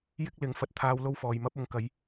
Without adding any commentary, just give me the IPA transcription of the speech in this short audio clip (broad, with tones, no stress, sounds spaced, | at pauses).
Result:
j ɪ˥ k̚ l ɪ˨˥ ŋ f ɐ˨ t̚ t̪ʰ aː˧ w l o˥ w f ɔː˨ j m ɐ˥ p̚ ʊ˨ ŋ k ɐ˨˧ j